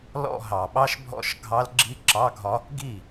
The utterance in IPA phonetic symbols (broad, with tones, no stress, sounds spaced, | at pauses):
l ɔ̰˥˧ ɦ ɑ˨˩ ɓ ɑ˥ ʃ bʱ ɔ̰˥˧ ʃ ɡʱ ɑ˧˥ l ɡ͡ǁ i˧˥ ǁ ɑ˧˥˧ ɡʱ ɒ˧˥ | ɡ i˥˩